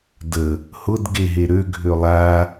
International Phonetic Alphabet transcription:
də | hʊd ɡeɦeɾø ɡʱølˠa

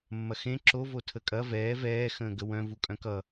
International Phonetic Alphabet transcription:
mːɐxẽ ǁo votʰəkʼɐ vɛː vɛː xə̃ːɡəwœ̃ vukʼœ̃kʌ

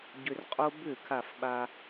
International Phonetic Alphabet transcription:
ɟʏ˧rqʼo˥ bʏ˥˩ kʰa˥˩fɓa˧

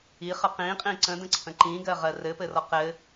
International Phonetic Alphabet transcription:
iχə qĩqʼĩ ǀə̃də̃ǀʰə̃ ǃĩɡɜʁɜ rɘpɘrɔ qɘ

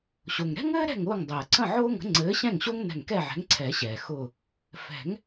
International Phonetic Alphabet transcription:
ɕo˩ŋɾɛ̤˥ŋɘː˥ ɾɛ̤˥˨ŋʊː˥˨ŋ dˤɘː˩ǀə̃˥˨ʕʊː˥ŋə̤˨˥ ŋ͡ǀɘː˨˥ɕɛ̃˥˨ŋɕo˥ŋ nɛ̤˧˩ŋkɛ˥˨ʕɛ̤˨˥ŋǀʰɛ˨˩˦ ɕɛː˩ xʊ˧˩ | fɛ̤˨˩˦ŋ

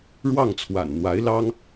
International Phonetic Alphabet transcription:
ɻwɑ˥˩ŋt͡sʰwa̰˨˩nn̪wa˧˥ɪ̯lɑ˥ŋ

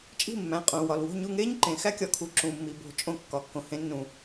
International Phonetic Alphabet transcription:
t͡ʃʼi̤˥˨mːæ̃˩˧˩ qʼũː˩wɒ˩lwo̤˥˨ɲu˥˨ ŋeː˥ɲǃẽ˩ xæ˥kʲɒ˨˦kʰu˩ ǁũ˩mːi˩ bo̤˧˩˧t͡ʃʼõ˧˩˧ kːɒ˩˧˩kːõ˩ hẽ˨˦nːũ˩

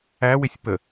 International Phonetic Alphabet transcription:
æwɪsʲ pə

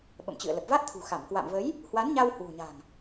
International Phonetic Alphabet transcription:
ɓə̰˧˨mt͡ɕɨ̰˧˨ə̯lə˨˩p̚ va˦˥t̚t̪ʰṳ˨˩xa˧˩mkwa̰˧˨m və˨˦j | hwa˨˦nɲa˧w hwṳ˨˩ɲa̤˨˩ŋ

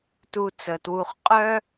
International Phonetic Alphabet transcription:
tu˨ t͡sə˩twu˨χqʼœ˥

